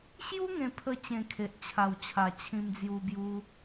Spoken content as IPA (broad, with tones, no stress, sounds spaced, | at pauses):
ɕ j u˦ ŋ ẽ˧ pʰ ə˧ t͡ɕ ẽ˧ kʰ e˨ ʔ t͡ɕʰ a˨˩ w t͡ɕʰ a˨˩ t͡ɕʰ ĩ˧ m d͡z j u˧ b j u˧